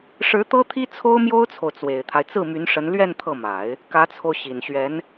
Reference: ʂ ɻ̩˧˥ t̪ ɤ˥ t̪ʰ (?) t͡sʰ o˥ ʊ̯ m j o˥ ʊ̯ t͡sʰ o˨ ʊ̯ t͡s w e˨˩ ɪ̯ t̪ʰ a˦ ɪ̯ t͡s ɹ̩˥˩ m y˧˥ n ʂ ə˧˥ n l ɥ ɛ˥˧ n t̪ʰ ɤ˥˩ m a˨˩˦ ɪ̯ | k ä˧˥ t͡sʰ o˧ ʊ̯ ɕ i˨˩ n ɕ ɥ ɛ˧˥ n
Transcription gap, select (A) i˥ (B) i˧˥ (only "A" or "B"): A